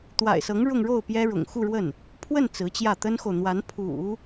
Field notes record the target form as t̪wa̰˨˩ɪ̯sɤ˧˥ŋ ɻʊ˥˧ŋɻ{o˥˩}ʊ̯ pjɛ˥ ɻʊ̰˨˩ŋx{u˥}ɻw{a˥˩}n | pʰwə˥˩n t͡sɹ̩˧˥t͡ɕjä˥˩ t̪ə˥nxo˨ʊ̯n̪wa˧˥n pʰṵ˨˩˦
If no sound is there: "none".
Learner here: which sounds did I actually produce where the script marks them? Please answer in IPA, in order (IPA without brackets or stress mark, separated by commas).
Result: o˥˩, u˥˧, ə˥˩